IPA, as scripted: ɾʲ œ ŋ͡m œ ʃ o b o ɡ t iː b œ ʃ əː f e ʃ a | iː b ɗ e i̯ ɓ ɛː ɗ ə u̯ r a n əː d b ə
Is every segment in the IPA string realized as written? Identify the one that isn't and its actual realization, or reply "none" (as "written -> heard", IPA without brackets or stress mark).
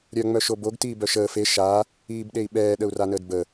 none